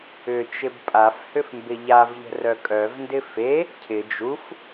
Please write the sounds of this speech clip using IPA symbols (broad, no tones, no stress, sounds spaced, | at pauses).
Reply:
ʏ t͡ʃ ɪ b pʼ a f h ʏ f m b ɪ ʎ a v ʎ ə̤ r œ kʼ œ v n d ɪ f e | cʰ ɪ d͡ʒ u f